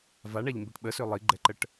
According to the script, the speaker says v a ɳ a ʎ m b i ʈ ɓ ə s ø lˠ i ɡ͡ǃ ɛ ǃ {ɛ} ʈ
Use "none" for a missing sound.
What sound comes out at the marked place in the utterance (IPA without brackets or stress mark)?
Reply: ə